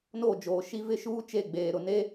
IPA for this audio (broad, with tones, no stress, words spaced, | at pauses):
no˦˨d͡ʒoː˨ʃi˦ vɪ˦ʃuː˦ t͡ʃe˦˨ɡ͡beː˨ ɾʊ˨ne˦